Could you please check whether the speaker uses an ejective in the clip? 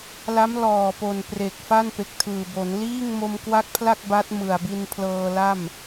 no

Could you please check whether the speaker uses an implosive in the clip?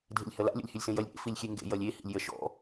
no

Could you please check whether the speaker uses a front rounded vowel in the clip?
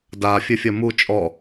no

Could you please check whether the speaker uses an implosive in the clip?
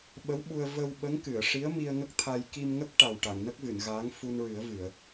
yes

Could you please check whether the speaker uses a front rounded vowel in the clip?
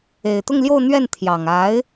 no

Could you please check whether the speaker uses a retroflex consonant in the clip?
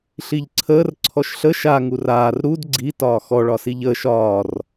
yes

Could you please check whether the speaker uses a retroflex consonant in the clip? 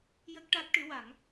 yes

